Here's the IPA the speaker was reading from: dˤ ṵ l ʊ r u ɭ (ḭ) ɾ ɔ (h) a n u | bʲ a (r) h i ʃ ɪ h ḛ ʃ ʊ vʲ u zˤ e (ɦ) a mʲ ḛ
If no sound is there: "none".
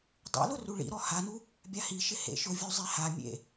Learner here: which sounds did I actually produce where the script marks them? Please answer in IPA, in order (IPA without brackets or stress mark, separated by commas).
ḭ, h, none, h